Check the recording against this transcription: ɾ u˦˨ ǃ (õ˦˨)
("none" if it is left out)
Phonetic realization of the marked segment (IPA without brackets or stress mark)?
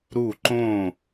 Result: õ˦˨